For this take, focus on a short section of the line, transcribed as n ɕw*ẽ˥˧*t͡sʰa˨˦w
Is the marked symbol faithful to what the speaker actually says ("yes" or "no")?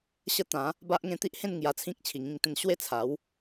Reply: no